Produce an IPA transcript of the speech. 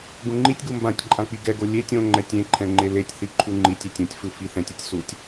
ɡ ũ ŋ͡ǃ i tʲ ɡ u m b ã tʲ ǃʼ ã k͡p i ɡ ɛ ɡ o lʲ e tʲ õ ŋ͡ǃ ɛ tʲ ẽ ǃʰ ɛ̃ ŋ͡ǃ e l e tʲ θ i ǃʰ u ŋ͡ǃ i tʲ e tʲ ũ tʲ f ɯ f i θ ɛ̃ tʲ u tʲ s u tʲ

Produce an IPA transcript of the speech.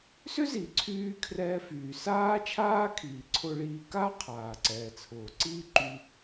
s ʏ˥ z i˩ ǀʰ yː˧ kʰ r ɛː˧ f yː˩ s aː˥ t͡ʃʰ aː˥ kʰ iː˩ ǀʰ ʊ˧ ɭ iː˧ k aː˥ qʰ aː˩ ǀ ɛː˩ t͡sʰ ʊː˩ ǀ iː˥ ǃ y˧

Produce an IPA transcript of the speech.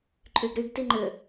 ǃʼ y ɡ ɾ y ɡ t i ŋ͡ǃ ʏ

